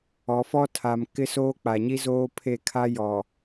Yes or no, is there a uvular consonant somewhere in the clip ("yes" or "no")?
no